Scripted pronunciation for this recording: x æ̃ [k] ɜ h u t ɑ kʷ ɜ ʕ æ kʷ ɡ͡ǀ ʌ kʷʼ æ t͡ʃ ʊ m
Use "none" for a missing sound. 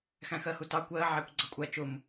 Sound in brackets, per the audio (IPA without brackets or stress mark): x